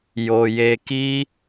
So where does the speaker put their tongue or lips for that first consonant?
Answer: palate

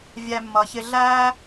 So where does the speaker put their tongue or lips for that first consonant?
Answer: lips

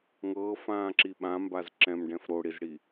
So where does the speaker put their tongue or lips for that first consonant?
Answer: velum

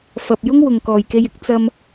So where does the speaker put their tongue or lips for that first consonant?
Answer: lips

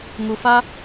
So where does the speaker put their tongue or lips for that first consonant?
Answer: velum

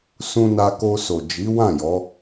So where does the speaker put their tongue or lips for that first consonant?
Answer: tongue tip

